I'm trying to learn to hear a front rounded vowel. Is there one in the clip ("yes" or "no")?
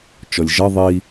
no